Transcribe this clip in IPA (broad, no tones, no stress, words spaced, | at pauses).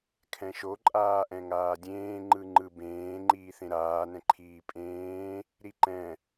kʰɛ̃ʃo ǃʼaːʔɛ̃ŋaːdʲẽː ŋ͡ǃɯŋ͡ǃɯbẽː ŋ͡ǃiːθẽɾaː nɛ̃ǃʰiːpʼẽː | ɾiǃɛ̃